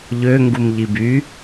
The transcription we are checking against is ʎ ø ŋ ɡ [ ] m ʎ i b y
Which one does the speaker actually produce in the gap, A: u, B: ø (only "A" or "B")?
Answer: A